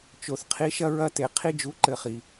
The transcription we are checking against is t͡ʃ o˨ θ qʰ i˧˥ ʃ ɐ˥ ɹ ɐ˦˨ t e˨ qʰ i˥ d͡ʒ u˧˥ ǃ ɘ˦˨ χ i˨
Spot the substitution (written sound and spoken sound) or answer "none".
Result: none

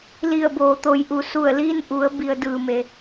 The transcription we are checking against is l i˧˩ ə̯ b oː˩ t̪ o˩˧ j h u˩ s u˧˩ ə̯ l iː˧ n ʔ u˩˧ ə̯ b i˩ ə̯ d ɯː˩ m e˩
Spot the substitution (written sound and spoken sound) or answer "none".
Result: h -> ʔ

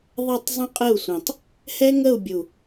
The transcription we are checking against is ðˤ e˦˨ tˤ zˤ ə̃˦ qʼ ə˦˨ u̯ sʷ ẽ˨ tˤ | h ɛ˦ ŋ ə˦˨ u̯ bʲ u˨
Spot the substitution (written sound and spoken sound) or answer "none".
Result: none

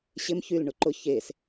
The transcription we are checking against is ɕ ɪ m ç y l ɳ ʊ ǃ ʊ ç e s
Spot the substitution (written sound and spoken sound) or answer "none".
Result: none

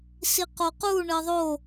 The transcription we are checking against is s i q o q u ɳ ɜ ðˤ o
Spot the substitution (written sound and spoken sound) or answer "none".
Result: none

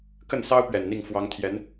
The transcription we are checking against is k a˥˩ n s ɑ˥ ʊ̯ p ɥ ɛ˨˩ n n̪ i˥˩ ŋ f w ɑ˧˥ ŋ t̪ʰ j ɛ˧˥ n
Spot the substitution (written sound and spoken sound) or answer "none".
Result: a˥˩ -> ə˥˩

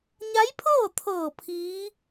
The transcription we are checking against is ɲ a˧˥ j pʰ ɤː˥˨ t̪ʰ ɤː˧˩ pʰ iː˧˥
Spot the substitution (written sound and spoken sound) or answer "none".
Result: none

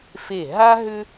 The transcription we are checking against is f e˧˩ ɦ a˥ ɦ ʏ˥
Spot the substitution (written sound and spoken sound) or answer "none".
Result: none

